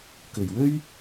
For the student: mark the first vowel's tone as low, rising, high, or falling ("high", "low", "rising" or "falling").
low